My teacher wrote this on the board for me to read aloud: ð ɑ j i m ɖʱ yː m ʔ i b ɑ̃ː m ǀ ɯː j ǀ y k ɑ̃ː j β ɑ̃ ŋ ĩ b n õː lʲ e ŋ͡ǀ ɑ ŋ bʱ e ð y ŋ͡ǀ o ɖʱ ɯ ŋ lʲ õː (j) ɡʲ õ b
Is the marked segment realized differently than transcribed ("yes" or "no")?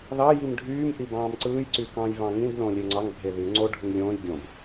no